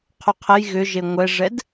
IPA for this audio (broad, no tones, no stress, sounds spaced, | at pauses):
qʰ u qʰ ə j ɣ ʏ ʒ e ŋʷ ɛ ʐ ɛ d